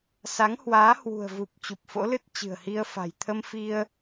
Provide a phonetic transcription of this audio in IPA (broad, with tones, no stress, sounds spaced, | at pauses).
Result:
s a˨˦ ŋ h w aː˨˦ h w ṳ˨˩ ə̯ v u˨˩ p̚ t͡ɕ u˨˩ p̚ f o̰˧˥ l ɨ˦˥ t̚ t͡ɕ ɨ̤˨˩ ə̯ h i˧ ə̯ f a̤˨˩ j t̪ʰ ə˧ m f i˧ ə̯